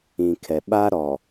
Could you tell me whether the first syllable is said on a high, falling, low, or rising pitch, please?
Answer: low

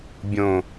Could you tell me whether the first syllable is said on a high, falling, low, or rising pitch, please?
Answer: low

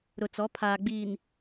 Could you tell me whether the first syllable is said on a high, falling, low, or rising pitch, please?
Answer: low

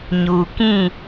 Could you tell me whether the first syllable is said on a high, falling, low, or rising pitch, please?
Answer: low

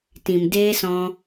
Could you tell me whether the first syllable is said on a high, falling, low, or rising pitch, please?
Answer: low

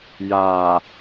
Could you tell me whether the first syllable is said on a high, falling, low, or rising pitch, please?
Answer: low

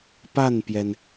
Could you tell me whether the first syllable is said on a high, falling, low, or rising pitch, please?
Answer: falling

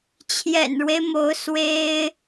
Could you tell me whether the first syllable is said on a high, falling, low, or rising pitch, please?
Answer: low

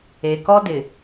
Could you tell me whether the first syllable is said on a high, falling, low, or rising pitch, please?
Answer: low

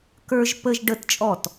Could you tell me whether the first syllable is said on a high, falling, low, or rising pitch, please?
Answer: high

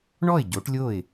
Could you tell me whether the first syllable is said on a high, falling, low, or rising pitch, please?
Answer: falling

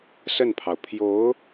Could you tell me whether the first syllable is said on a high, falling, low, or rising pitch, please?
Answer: falling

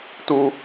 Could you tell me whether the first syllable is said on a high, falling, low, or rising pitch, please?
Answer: high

